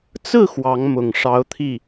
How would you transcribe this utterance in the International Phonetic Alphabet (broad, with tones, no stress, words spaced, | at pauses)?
t͡sɹ̩˥˩ xwɑ˧˥ŋmʊ˨˩ŋ ʂɑ˧˥ʊ̯t̪ʰi˥˩